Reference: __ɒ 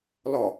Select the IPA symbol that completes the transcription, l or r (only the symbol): l